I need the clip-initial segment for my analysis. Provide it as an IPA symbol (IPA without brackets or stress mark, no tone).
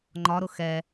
ŋ͡ǃ